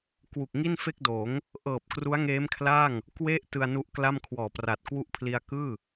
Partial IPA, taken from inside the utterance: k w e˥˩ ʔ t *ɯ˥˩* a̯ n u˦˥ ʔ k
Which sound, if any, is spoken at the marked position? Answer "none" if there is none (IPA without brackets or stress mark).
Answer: ɯ˧